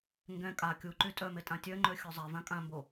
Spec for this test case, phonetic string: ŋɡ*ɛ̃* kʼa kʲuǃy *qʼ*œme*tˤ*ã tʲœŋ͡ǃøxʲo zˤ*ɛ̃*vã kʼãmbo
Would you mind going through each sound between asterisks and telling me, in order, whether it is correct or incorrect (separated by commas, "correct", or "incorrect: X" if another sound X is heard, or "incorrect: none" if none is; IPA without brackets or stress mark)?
correct, incorrect: tʼ, incorrect: tʼ, incorrect: ɛ